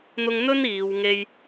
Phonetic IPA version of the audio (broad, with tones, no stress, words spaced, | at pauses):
n̪ʊ˥ŋ n̪ɵ˥n iː˨˧wŋe˥j